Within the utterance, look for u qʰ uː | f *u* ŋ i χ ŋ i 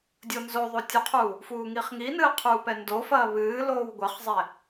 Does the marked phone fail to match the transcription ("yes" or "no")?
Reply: yes